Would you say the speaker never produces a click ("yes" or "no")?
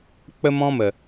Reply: yes